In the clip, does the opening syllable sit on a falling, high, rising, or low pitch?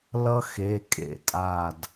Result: high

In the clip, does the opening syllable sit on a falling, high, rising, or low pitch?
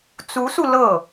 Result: rising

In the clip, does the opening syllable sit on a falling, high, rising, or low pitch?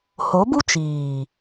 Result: rising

